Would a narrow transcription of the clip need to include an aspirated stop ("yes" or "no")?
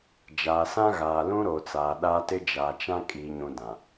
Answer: no